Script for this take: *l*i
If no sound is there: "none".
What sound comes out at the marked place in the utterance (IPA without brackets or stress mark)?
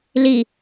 l